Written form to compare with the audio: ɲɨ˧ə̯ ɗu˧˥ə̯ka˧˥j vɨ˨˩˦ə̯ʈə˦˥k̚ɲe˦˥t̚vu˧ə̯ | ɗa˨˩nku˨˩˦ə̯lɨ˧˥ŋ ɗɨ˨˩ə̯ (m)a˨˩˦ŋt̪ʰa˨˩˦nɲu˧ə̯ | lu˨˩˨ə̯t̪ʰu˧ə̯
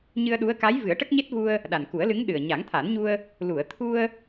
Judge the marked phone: incorrect: ɲ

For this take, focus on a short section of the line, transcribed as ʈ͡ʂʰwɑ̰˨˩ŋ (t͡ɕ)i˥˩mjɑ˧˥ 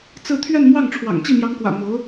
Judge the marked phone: correct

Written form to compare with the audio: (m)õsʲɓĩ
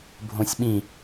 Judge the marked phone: incorrect: bʱ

